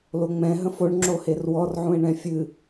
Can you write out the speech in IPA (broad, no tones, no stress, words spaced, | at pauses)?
loŋ͡mɛ̃ ɦə̃foɳ ŋ͡ǁoherwɔr ʕũe̯ɳɛ̃fʲɨ